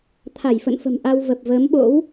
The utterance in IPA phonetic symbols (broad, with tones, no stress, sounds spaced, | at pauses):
t̪ʰ a˧˩ j f ə̰˧˨ n f ə̤˨˩ m ʔ a˧ w v ə˨˩ p̚ v əː˨˦ m ɓ o̰˧˥ w